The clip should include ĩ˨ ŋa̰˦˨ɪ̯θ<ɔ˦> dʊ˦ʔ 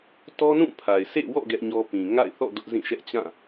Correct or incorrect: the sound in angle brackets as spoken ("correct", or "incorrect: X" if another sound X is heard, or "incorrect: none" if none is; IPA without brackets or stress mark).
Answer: incorrect: ɔ̰˦˨